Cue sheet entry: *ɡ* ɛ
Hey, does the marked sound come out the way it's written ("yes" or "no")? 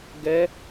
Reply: yes